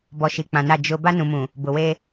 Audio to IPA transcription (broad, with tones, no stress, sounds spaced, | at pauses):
b ɔ˨ ʃ i˨ k͡p ã˨ n a˦˨ d͡ʒ ʊ˦ b a˦ n ũ˨ m ũ˨ | b ʊ˨ w e˦